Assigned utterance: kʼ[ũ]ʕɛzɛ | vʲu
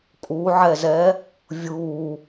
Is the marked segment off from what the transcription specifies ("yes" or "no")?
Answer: yes